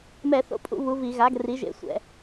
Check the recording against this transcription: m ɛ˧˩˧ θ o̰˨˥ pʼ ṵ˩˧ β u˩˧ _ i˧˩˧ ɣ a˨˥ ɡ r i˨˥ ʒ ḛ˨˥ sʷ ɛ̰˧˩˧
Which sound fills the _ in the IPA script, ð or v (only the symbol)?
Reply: v